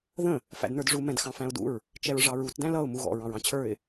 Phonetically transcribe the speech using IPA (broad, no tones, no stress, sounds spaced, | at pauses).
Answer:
ð ə̃ | f æ̰ d n ə˞ d ʐ u m ɛ̃ d x ɑ̃ f æ̃ ʊ̯ d ṵ ɹ | t͡ʃ ɛ ɹ ʐ ɑ ɹ u t d æ̃ l ʌ ʊ̯ m u ɣ ɔ̰ ɹ ɑ̃ ɹ ɑ̃ t͡ɕʰ ə˞ ɪ̯